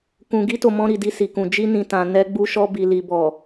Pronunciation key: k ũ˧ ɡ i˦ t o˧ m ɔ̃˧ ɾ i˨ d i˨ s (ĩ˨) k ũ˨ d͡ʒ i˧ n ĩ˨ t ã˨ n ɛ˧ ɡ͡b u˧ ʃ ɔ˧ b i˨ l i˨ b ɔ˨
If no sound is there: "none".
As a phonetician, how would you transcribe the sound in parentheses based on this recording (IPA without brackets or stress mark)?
i˨